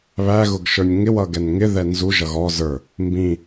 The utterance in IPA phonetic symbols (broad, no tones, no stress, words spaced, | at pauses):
βæɣʊɡʃə˞nʲ ŋɪwʌ ɡɛnŋɪ ðɛnzu ʒʌɣɔ zə˞ | mbĩ